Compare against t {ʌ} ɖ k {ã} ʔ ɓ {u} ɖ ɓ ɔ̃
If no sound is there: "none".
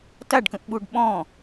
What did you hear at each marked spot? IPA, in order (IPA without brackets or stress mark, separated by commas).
a, ə̃, u